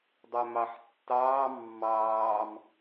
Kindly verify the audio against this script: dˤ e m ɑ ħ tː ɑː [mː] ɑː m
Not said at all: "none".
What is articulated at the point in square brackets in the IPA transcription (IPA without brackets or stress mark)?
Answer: mː